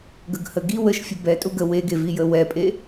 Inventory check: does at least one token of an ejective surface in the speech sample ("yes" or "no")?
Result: yes